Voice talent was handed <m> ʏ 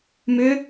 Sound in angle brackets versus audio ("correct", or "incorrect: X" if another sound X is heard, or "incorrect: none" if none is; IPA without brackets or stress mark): correct